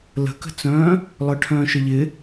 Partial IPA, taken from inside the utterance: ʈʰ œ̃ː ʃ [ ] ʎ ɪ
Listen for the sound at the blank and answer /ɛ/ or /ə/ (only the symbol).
ə